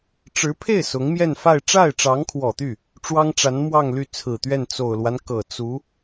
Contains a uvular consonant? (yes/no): no